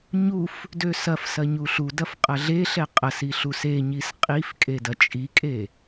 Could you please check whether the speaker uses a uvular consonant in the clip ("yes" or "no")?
yes